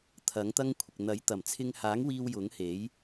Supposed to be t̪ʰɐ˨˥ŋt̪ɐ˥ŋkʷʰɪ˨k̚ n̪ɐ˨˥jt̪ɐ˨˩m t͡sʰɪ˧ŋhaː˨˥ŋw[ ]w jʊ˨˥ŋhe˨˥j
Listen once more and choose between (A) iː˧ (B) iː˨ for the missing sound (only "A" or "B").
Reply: A